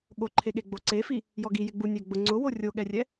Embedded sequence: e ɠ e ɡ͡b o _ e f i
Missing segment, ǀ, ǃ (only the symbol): ǀ